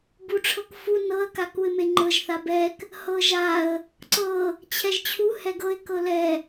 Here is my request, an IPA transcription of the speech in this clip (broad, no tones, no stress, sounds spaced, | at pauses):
b u ʈ͡ʂʰ ɤ k f u n ɤ ə̯ k a k u ɪ̯ m e ŋ͡ǃ ɤ ʒ θ a b ɛ k | h ɤ ʒ a ə̯ | ǀ ɤ | t͡ɕʰ ɛ ʒ t͡ɕʰ u h ɛ ɡ ɤ ɪ̯ k ɤ l ɛ